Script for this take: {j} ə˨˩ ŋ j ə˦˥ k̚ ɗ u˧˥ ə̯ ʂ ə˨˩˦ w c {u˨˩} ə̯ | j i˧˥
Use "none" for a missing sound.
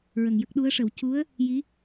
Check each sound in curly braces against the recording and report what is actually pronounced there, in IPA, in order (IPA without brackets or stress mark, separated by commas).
ɹ, u˧˥